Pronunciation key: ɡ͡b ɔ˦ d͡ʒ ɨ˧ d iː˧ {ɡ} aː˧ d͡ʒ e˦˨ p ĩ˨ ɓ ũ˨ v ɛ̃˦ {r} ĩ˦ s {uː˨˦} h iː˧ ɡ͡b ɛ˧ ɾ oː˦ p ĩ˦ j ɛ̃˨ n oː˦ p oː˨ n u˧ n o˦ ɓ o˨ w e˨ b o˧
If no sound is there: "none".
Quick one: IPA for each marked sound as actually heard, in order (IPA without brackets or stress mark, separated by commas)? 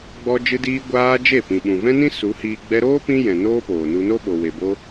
ɡʷ, n, u˨˦